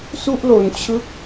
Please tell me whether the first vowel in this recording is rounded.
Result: yes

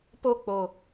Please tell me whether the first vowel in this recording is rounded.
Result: yes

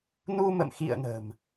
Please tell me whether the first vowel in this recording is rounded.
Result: yes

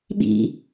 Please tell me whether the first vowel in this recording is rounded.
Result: no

